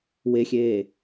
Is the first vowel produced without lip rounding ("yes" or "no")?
yes